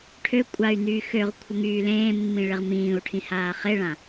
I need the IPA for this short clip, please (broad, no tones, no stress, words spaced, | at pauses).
ʈʰø kʷʼay̯nyː xøʁ kʷʰəŋyːlẽːmːĩ ɭeʁmĩːu̯ʈʰĩ haːχeɭã